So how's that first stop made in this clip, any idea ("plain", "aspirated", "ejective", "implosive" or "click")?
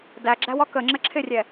plain